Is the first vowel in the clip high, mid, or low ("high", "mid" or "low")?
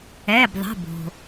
mid